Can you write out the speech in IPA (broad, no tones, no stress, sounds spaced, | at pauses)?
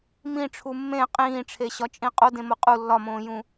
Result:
m ĩ ʈ͡ʂʰ u mː ẽ qʼ ĩː ʈ͡ʂʰ e ɕ ɒ t͡ʃʼ ĩ qʼ o d ẽ m o qʼ u lː ɒ m õː j ũ